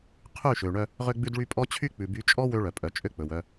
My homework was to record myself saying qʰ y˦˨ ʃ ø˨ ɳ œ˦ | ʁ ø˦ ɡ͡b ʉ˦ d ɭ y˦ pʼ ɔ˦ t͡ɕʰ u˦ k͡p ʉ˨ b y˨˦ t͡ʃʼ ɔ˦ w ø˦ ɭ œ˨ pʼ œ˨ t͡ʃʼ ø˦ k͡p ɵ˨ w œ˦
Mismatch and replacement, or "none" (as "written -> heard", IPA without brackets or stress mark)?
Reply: u˦ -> y˦